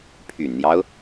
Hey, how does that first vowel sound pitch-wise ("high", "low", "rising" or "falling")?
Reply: low